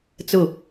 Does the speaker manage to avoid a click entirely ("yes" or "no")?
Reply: yes